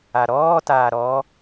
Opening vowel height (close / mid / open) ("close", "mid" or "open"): open